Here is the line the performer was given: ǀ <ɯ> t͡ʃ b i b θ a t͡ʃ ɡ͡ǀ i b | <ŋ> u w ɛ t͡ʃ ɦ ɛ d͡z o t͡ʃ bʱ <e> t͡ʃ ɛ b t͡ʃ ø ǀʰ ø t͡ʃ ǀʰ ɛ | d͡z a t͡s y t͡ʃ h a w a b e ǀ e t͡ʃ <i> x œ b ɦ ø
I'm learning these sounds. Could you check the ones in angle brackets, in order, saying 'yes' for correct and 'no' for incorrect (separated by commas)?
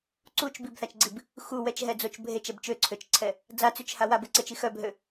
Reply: no, no, yes, yes